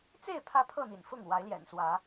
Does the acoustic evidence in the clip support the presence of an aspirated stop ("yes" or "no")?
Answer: yes